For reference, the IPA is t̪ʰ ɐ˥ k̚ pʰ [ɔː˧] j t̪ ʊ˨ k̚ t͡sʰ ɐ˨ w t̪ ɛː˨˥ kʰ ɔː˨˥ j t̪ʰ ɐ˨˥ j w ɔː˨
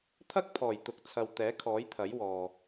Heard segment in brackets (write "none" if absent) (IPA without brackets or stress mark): ɔː˨˩